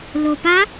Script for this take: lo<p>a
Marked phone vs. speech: correct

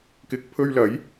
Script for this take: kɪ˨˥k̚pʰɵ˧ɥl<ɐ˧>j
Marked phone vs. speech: incorrect: ɐ˨˥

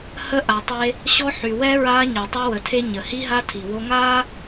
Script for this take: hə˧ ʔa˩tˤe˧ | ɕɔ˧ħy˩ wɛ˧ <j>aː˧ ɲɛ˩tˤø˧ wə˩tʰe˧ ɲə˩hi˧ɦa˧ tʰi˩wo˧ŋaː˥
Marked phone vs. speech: incorrect: ɹ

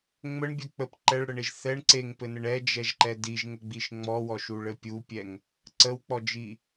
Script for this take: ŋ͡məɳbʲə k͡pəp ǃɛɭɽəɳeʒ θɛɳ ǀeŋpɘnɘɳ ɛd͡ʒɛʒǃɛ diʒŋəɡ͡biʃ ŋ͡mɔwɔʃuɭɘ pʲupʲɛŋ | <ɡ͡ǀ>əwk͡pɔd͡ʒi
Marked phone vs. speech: incorrect: ǀ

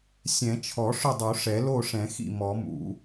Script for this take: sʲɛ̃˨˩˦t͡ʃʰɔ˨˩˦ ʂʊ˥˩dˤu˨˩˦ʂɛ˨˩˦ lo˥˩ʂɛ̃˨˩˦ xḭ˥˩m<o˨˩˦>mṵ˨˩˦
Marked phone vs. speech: incorrect: ɔ˨˩˦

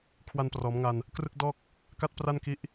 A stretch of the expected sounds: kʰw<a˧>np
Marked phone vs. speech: correct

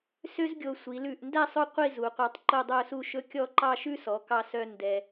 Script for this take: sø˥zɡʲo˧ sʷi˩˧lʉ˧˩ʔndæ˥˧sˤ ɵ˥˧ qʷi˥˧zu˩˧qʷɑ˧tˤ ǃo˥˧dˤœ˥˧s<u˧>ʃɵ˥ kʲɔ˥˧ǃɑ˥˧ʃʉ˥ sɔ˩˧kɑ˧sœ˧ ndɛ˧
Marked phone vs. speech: incorrect: u˥˧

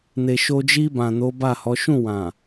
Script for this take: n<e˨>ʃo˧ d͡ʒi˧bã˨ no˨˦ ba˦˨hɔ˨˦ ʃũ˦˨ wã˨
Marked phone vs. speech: correct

